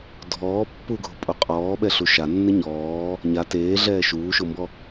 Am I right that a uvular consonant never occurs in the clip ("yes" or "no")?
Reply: no